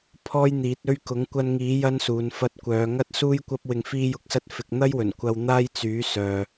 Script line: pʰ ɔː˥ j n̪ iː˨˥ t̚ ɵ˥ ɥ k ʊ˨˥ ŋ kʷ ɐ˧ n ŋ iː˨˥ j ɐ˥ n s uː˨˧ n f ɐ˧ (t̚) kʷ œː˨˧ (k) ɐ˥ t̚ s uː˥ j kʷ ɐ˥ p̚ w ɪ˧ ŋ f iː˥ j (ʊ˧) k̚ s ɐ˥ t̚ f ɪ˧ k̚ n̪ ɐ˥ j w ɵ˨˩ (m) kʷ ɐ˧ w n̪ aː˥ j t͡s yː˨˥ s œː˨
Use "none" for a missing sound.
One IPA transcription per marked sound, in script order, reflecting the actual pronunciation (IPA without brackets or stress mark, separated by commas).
t̚, ŋ, ʊ˧, n